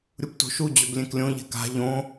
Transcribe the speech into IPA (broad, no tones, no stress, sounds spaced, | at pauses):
ɾʲ u p t o̤ ʃ u d͡ʑ ɵ b lʲ ẽ k lʲ õ ʎ ɛ̤ k a̤ ʎ õ